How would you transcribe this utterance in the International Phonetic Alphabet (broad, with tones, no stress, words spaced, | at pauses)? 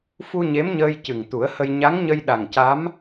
fu˧ ɲe˧˥mɲəː˧j cɨ˨˩ŋ t̪u˨˩˦ə̯hə˧j ɲa˧˥ŋɲə˧jɗa˨˩ŋca˧˥m